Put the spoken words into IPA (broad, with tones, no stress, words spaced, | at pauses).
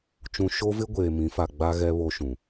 t͡ʃũ˨ʃo˦vɪ˦ ɡʷeː˨mĩ˨˦fa˨ ɡ͡ba˦ ɣɛ˦βo˦ʃũ˨